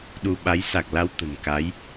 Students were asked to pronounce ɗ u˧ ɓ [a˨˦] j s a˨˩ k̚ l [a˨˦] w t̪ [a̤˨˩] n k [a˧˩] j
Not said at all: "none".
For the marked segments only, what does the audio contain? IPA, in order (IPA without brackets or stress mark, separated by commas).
a˨˦, a˨˦, ə̤˨˩, a˨˦